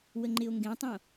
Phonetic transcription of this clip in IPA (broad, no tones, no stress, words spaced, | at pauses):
wəŋ͡ǃɪo̯ŋɡẽtˤõ